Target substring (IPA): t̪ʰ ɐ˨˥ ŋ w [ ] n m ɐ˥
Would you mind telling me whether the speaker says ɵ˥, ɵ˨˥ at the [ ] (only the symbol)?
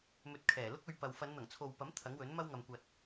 ɵ˨˥